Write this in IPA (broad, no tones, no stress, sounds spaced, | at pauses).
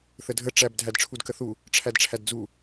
θ ə dʱ ə ʈ͡ʂ æ b dʱ æ d ʈ͡ʂʰ u d k ə θ u | ʈ͡ʂʰ æ d ʈ͡ʂʰ æ d d͡z u